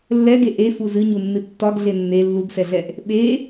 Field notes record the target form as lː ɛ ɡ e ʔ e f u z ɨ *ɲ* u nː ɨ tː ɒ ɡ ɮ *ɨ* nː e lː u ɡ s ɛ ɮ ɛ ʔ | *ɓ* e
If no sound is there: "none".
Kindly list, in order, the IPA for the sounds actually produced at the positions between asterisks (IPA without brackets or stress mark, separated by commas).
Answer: ɲ, e, ɓ